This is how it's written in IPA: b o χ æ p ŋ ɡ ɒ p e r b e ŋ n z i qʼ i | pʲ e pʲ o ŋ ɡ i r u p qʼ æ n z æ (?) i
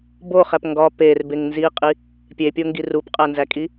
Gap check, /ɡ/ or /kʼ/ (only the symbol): kʼ